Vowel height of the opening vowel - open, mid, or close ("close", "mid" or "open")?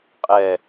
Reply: mid